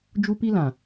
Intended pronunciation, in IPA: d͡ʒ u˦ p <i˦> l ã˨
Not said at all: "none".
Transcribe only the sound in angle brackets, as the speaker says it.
i˦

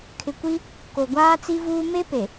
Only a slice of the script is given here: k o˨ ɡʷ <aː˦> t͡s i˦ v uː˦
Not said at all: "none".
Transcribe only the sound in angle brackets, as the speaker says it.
aː˦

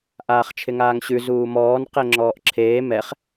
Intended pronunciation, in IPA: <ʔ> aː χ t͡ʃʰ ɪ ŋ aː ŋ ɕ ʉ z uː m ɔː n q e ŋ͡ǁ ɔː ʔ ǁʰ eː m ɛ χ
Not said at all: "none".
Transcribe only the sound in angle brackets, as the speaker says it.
ʔ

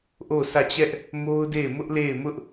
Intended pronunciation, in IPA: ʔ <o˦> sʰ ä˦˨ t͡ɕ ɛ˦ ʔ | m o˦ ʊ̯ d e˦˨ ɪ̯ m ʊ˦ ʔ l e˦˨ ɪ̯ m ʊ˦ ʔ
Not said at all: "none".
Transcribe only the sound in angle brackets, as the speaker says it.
o˦˨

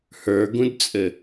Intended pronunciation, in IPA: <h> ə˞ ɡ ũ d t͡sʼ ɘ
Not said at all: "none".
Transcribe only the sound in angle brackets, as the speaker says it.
h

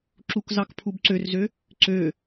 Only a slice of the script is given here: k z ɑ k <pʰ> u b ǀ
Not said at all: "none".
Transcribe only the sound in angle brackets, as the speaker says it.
pʰ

